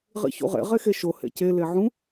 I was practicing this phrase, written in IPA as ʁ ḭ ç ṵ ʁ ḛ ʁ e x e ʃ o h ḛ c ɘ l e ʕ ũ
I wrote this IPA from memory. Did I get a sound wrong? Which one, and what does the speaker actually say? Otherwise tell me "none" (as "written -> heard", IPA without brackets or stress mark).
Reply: ɘ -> e